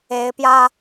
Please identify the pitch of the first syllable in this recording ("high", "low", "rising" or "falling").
rising